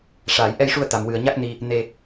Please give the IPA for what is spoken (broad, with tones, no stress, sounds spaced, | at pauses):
ʂ aː˨˩˨ j ʔ ɛ˧ j ʂ u˧ ə̯ t̪ a˨˩ m w ɨ˨˩ ə̯ ɲ a˦˥ k̚ n i˧ | n e˧